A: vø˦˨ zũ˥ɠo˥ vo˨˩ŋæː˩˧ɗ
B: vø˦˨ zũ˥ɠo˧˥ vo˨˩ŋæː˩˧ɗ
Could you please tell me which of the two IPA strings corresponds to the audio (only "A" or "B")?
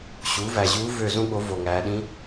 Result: B